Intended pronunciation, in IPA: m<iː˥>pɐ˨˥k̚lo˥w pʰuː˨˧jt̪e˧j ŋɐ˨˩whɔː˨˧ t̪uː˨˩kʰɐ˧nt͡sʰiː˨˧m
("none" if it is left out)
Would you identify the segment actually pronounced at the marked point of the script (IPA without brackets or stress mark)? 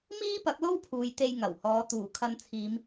iː˥